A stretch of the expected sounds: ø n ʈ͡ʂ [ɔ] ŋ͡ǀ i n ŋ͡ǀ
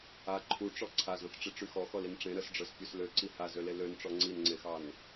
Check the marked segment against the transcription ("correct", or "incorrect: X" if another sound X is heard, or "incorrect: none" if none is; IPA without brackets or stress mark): correct